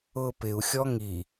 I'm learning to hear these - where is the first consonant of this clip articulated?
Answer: lips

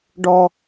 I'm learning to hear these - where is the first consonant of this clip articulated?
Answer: retroflex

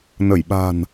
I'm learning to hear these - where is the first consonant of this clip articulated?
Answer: tongue tip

